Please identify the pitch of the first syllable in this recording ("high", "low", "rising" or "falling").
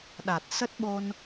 low